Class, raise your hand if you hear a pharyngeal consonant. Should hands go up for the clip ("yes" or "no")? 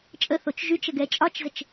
no